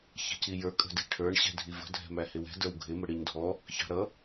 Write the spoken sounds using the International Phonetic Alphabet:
ç ɛ̤ c i j ə˞ kʼ ə̤ d i̤ ʈʰ ə˞ ɳ ɕ ɛ̤ dʱ i v ə̤ dʱ ɛ̤ m æ h ɪ w ɛ̤ d ə˞ w ɡʱ ɪ m ə ɽ i ɲ dʱ ɔ | ç ɑ̤ ɾ ʌ

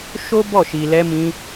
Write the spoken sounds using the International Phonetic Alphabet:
ʃ o˦ b ɔ˦˨ ʃ i˨ l ɛ˧ m ĩ˧

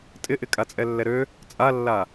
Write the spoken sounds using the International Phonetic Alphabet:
tʼ ɪ ʔ ɪ kʼ a t͡sʼ ɛ lː ɛ ɾ ø | t͡sʼ a lː a

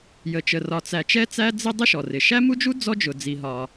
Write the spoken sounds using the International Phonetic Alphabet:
j ə˩ t͡ʃ ə˩ r ɒ˩ t͡s æ˩ t͡ʃ ɛ˥ t͡s æ˥ d͡z ɪ˥ dˤ ɪ˥ ʃ ɔ˩ r ɪ˩ ʃ æ˥ m u˥ d͡ʒ u˥ d͡z ɔ˥ d͡ʒ ʊ˩ d͡z i˩ ɦ ɒ˩

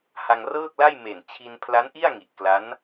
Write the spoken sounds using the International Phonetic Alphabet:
h a˧ ŋ r ɤː˥˩ k̚ l a˥˩ j m e˨˩ n t͡ɕʰ i˧ n pʰ l a˦˥ n ʔ i˥˩ a̯ ŋ i˨˩ ʔ k l a˦˥ n

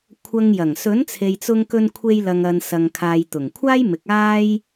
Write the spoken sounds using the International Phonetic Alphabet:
kʷʰ ɐ˧ ŋ j ɐ˨˩ ŋ s ɵ˨˥ n t͡sʰ e˨ j t͡s ʊ˧ ŋ k ɵ˧ n kʷʰ e˧ j l ɐ˨ ŋ ɐ˨ n s ɐ˨ ŋ kʰ aː˨ j t̪ ʊ˨˩ ŋ kʷʰ aː˥ j m ɪ˨˥ k̚ aː˥ j

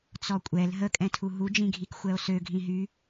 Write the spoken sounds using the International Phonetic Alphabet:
t͡s ɔ kʷʼ ɛ l ɦ ə kʼ ɛ̃ tʰ u ɦ u d͡ʒ ĩ ɡʱ i k xʷ ɛ o̯ s ø ɡʱ ĩ ɦ y

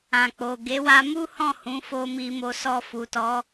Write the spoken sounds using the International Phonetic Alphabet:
ã˨ k͡p o˨ ɡ e˨˦ w a˧ m u˦ h ɔ̃˦˨ h ũ˨˦ f o˧ m i˧ m o˧ s ɔ˧ f u˨ t ɔ˨˦

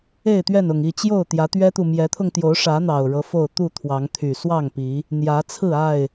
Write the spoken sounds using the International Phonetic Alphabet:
e˥˨ ɪ̯ t̪ ɥ ɛ˥˨ n ʊ˨˩ ŋ i˥˨ t͡ɕ j o˥˨ ʊ̯ t̪ j ä˨˦ t̪ ɥ ɛ˦ t̪ u˨ m j ɛ˨˦ t̪ʰ ʊ˧ ŋ t̪ j o˨˦ ʊ̯ ʂ ä˨˦ n̪ ɑ˨˩ ʊ̯ ɻ ɤ˦ f o˥˨ ʊ̯ t̪ u˥˨ t̪ʰ w ɑ˨˦ ŋ t̪ʰ y˨˩ s w ɑ˥˨ ŋ p i˨˦ | n̪ j ä˨˦ t͡sʰ ɹ̩˥˨ a˥˨ ɪ̯

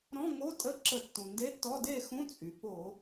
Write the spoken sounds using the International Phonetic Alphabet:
ɾ ɔ̃˧˥˧ ŋ o˧˥˧ tʼ ə˧˥˧ ǁ ə˧˩˧ tː ũ˩ n d e˧˥˧ tː ɔ˧˥˧ d e˥˨ x ũ˧˥˧ t͡sʼ y˩ p o˧˩˧

